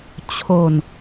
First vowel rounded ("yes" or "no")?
yes